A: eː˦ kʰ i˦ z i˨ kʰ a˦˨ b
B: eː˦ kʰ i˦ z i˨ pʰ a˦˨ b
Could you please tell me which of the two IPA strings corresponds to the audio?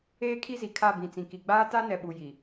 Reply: A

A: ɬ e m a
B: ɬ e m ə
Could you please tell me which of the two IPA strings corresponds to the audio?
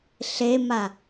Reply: A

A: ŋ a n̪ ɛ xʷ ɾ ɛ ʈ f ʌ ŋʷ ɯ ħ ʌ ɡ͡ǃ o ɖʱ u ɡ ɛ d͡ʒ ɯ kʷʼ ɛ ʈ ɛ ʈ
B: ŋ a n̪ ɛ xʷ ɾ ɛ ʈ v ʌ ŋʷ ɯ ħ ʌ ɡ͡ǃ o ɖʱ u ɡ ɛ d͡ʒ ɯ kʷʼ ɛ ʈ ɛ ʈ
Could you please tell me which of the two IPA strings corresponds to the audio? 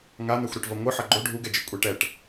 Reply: B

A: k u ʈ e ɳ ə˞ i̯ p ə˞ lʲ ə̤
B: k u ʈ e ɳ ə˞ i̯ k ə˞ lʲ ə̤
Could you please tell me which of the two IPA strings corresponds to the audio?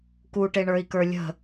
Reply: B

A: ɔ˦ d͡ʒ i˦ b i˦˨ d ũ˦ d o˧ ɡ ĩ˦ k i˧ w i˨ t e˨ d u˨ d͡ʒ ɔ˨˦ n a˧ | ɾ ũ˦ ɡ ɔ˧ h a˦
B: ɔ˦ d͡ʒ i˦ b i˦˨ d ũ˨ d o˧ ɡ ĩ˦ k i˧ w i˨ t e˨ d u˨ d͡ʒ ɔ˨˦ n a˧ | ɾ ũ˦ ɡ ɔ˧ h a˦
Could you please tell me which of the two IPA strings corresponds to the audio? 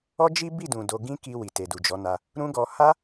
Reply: B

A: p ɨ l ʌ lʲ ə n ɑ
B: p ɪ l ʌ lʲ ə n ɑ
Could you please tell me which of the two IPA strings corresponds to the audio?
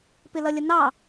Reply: B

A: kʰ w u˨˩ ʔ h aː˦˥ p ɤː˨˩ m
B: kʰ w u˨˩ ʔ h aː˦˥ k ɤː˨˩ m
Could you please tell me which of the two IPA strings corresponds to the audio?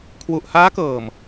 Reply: B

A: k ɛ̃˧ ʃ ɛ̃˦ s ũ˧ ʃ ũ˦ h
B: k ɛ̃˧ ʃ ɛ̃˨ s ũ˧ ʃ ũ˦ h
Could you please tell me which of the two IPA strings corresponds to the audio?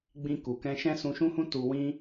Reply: A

